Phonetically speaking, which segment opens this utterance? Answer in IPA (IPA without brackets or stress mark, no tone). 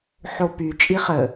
ħ